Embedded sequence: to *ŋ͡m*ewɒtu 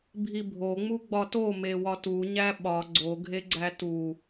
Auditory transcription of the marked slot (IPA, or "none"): m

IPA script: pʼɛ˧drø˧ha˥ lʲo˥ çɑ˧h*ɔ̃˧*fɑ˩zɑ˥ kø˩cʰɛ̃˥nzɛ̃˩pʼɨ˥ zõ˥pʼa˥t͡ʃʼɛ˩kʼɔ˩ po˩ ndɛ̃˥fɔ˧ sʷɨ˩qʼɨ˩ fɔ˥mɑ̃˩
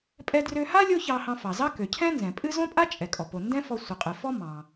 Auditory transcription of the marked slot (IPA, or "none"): ɑ̃˧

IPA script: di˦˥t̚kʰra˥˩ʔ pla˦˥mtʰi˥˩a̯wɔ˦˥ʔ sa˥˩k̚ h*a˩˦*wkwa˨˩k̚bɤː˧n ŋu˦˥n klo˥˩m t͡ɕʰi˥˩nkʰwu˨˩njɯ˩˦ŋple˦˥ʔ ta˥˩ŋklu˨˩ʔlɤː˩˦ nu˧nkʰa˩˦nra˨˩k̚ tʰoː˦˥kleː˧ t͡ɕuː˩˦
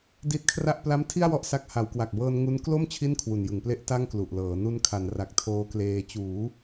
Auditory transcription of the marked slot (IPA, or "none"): a˩˦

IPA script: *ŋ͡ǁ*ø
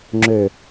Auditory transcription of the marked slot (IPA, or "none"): ŋ͡ǁ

